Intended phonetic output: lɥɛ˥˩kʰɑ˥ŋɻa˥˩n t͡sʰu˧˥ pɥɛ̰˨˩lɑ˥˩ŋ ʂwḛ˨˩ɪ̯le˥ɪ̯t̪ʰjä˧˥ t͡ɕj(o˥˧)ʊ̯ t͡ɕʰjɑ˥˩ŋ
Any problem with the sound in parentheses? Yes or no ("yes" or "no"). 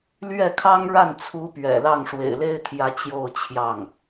no